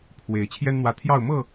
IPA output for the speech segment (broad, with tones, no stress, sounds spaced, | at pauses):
pʰ w e˨˦ ɪ̯ t͡ɕʰ j ɛ˦ n n̪ w ä˨˦ t̪ʰ j ɑ˥˨ ʊ̯ m ɤ˥˨